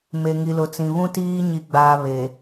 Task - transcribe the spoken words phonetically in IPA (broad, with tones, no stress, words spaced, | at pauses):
me˨ŋi˨lʊ˨t͡sĩ˨ βũ˦tiː˦ ɲi˨ɡ͡baː˨ βe˨